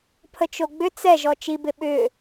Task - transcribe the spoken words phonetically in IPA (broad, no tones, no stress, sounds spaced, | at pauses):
pʰ ə t͡ʃ o ɡ͡b ʏ t͡s ɛ ʒ ɔ t͡ʃ i b ɪ ɓ ʏ